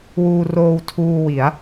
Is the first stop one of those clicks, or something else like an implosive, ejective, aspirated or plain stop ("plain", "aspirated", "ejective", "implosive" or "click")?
aspirated